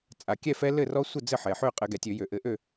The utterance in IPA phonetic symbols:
t͡sʼ a˩ kʲ ɛ˥˨ f ɛ˦˥ l ɘ˥˨ r ɔ˦˥ sʷ ɘ˥˨ d͡z ɘ˥˨ ħ ɛ˩ ħ ø˥˨ qʼ ɘ˧˩˧ ɡ ɛ˩ tʲ ø˧˩˧ j ø˩ ʔ ɘ˧˩˧ ʔ ø˥˨

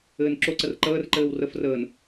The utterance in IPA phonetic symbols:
ɘː n ǁ o ǀ ə r ǃ əː r ǃ ɘː w r ə f r əː n

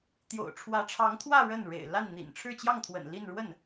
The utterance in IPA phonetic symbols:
t̪ j o̰˨˩ ʊ̯ ʈ͡ʂʰ w ä˧˥ ʈ͡ʂʰ ɑ˧˥ ŋ t̪ʰ w ä˥˧ ɻ ə˥˩ n ɻ ḛ˨˩ ɪ̯ l a˥˩ n n̪ ḭ˨˩ n ʈ͡ʂʰ ɻ̩˥˧ t͡ɕ j ɑ˥˩ ŋ t̪ʰ w ə̰˨˩ n l i˥˧ n ɻ w ə˥˩ n

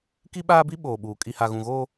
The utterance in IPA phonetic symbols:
k i˦ ɓ aː˦ b i˦ ɓ oː˨ ɓ uː˨ kʼ i˨ h a˨ ɣ ũ˨ ɣ oː˦

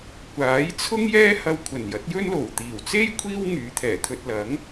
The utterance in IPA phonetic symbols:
kʷ aː˨˥ j t͡sʰ ʊ˥ ŋ j ɛː˥ h ɐ˧ w kʷʰ ɐ˨˩ n j ɐ˨˥ t̚ j ɵ˥ n l o˨˩ w t̪ iː˨˩ w t͡s e˥ j kʷʰ iː˥ w ŋ yː˨˧ t̪ʰ ɛː˨˩ t̪ʰ ɵ˧ t̚ l ɐ˨˥ ŋ

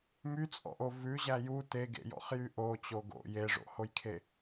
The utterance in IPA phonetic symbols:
m y t͡sʼ ɔ̰ ʔ o v ʉ ʑ æ j u t e ɡ ḛ j ɔ̰ χ j y ʔ o t͡ɕ o ɡ o̰ j e ʐ o̰ h o j kʰ e

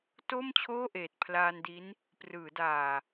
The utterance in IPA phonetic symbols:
t o˥˩ m t͡ɕʰ oː˥˩ ʔ eː˨˩ t̚ pʰ l aː˧ n d i˦˥ n | p r ɯː˩˦ d aː˨˩

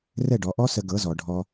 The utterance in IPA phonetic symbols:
r ɛ˦˨ ɖ ɔ˨˦ ʔ ɔ˦ s ə˧ ɡ ɤ˨˦ z ɔ˨ ɖʱ ɔ˧

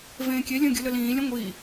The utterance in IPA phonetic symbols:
v ẽː kʲ e lʲ ə̃ː ɡʲ ə l ə l ĩː lʲ ə̃ ŋʷ iː

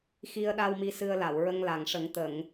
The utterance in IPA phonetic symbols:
x i˧ ə̯ ɗ a˧ w m i˧ s ɨ˧ ə̯ l a˨˩˨ w ɹ ə˧ ŋ l a˨˩ ŋ ʂ ə˨˩˦ ŋ t̪ ə˨˩˨ ŋ

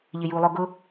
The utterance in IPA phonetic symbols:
ʎ ɪ j u lˠ ʊ ɡ ʊ

